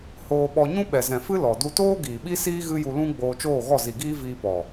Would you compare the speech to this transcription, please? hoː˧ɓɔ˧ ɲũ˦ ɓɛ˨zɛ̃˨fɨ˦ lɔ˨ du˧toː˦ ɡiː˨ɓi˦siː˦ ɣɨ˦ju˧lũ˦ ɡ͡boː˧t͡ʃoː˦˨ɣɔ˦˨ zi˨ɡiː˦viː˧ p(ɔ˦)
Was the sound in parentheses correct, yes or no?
no